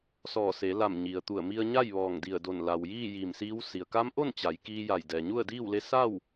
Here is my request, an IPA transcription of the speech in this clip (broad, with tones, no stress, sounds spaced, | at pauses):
s ɔː˧˩ s e˩˧ l a˧˩ m ɲ i˩ ə̯ t̪ u˧˩ ə̯ m i˧ ə̯ ɲ a˥˨ j ʋ ɔː˧˩ ŋ d i˧˩ ə̯ d o˧˩ n l a˩ w j iː˥˨ j iː˧˩ m s iː˧˥ w s i˩ ə̯ k a˧˥ m ʔ o˥˨ n t͡ɕ a˩˧ j k iː˧ j a˧˩ j d ɛː˩ ɲ u˥˨ ə̯ d iː˥˨ w l e˧˥ s a˥˨ w